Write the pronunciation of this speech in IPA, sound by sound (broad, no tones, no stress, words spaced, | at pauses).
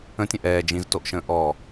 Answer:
ə̃tʲə̃ ʔɛː d͡ʒĩztoʔʃə̃ː ʔɔː